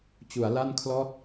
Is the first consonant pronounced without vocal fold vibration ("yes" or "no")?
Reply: yes